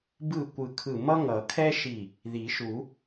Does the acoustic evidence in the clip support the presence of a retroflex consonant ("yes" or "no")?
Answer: no